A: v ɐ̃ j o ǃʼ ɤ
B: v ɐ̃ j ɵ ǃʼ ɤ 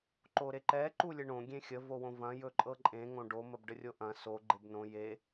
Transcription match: B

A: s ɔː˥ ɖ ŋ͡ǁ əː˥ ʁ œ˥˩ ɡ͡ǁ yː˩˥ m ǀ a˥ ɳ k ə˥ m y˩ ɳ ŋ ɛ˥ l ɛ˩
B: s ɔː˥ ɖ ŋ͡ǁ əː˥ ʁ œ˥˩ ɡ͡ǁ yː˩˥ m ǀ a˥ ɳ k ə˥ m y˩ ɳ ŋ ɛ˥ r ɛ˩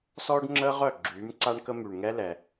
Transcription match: A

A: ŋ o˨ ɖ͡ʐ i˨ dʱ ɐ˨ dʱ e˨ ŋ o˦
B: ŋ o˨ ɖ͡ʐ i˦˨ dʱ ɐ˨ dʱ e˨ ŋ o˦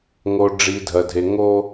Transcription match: A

